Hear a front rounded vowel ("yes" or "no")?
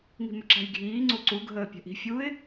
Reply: yes